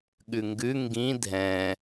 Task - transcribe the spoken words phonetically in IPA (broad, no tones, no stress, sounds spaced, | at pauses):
ɠ ʉ ŋ ɡ ʉ ŋ ɡ ĩ dʱ ɛ̃